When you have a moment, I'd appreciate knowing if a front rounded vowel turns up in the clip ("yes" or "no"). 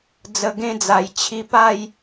no